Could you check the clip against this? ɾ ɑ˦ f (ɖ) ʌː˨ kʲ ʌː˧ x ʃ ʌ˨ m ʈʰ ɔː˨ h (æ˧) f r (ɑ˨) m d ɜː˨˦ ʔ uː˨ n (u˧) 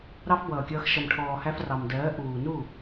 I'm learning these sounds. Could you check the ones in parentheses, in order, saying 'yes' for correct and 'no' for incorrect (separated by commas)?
no, yes, yes, no